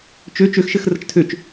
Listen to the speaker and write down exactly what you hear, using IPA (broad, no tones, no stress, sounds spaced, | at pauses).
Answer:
t͡ʃ ø t͡ʃ ø x ʃ ɘ x r ə t͡ʃ tʰ ø t͡ʃ